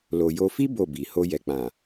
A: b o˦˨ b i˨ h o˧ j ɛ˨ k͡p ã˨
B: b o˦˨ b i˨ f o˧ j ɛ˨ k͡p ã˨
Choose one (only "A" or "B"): A